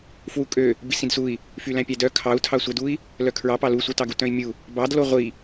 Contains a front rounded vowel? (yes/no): yes